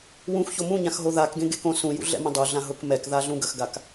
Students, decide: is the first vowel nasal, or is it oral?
nasal